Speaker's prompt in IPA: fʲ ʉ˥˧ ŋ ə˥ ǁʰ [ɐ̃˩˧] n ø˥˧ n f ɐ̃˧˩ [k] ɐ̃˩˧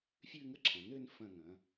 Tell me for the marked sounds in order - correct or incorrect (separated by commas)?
correct, incorrect